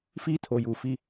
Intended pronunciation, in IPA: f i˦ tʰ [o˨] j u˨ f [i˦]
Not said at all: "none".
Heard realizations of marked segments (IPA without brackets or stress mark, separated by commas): o˨, i˦